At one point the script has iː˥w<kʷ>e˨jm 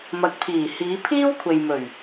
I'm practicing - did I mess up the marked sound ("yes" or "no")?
yes